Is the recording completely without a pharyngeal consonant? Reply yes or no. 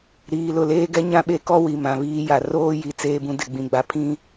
yes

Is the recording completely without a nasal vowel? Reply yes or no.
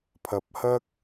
yes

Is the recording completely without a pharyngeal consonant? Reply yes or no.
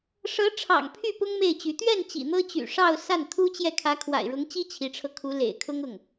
yes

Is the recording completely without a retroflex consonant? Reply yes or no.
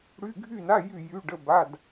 no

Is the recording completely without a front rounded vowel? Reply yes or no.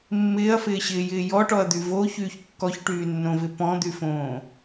no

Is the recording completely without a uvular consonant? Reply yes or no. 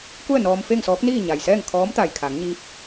yes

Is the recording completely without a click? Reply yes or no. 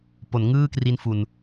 yes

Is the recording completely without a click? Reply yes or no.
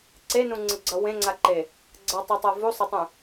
no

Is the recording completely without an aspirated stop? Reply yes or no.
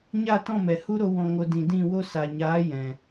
yes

